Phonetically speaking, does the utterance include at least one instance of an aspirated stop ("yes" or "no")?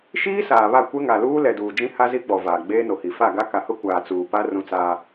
no